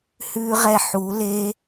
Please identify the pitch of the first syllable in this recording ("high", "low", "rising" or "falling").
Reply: high